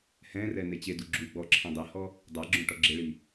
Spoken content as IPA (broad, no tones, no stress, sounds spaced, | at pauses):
h ɛ̃ r ɛ n e t͡ɕ e d u ɡ͡ǁ u ɡ͡b ɔ ǁʰ ɛ̃ dˤ ɛ h ɔ | dˤ a ɡ͡ǁ õ ʈ ɔ ɡ͡ǁ ɪ ɭ i